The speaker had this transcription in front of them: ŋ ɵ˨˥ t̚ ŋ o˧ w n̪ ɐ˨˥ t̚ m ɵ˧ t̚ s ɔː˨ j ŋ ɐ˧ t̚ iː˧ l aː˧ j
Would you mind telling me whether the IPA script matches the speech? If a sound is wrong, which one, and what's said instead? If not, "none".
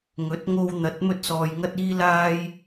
none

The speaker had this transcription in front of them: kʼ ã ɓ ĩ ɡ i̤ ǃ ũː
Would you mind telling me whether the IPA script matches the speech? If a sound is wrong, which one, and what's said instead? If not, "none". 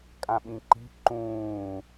ɡ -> ǃ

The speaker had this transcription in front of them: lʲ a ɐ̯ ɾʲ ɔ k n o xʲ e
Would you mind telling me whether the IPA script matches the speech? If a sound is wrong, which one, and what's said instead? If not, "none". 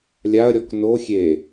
none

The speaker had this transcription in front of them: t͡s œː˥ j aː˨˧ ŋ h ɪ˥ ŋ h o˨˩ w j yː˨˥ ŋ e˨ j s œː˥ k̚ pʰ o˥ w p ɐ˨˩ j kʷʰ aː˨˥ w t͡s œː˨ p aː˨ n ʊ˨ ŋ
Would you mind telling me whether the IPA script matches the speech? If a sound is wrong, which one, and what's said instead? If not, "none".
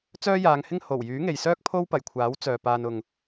none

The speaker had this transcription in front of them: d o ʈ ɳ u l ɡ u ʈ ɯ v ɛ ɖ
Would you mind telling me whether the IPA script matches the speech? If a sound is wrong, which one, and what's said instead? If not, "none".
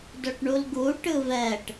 ɖ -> ʈ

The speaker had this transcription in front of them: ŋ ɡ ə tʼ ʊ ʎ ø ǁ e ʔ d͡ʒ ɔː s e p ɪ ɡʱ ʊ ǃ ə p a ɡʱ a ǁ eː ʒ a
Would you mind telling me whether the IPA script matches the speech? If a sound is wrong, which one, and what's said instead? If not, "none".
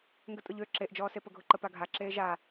ɪ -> ə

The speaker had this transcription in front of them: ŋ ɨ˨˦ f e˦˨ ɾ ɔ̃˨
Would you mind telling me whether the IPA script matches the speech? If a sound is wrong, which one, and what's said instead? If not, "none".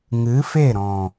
none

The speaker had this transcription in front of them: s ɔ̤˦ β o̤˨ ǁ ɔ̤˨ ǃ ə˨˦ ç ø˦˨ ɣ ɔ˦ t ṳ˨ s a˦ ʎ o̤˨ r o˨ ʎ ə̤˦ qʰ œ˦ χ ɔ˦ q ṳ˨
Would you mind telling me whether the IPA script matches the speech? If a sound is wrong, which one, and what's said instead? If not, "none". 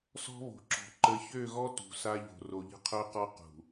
χ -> q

